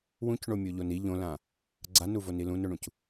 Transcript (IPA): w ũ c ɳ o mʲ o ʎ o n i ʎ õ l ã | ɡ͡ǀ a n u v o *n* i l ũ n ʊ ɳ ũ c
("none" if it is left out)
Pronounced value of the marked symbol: n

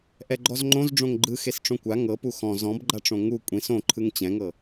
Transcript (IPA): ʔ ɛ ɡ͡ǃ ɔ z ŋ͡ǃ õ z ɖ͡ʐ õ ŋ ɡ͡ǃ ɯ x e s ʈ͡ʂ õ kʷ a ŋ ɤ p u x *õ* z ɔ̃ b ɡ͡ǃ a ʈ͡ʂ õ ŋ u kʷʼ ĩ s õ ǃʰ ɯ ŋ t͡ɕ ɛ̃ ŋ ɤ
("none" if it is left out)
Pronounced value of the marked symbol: ɔ̃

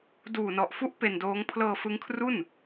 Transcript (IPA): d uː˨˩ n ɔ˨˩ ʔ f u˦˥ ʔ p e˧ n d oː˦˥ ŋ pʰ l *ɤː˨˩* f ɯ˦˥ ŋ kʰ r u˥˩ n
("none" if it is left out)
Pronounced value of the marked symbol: ɤː˧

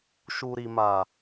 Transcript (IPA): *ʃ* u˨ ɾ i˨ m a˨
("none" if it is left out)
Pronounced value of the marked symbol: ʃ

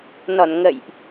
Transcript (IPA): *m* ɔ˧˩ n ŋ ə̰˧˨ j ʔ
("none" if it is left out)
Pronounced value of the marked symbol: n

